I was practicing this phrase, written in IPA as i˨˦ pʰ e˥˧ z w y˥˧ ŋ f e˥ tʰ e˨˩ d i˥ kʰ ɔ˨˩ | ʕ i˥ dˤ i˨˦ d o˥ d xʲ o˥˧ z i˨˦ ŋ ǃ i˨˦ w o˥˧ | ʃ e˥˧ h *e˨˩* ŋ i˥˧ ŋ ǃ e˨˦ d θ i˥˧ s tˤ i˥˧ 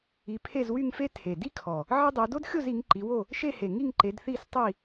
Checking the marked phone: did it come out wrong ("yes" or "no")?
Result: no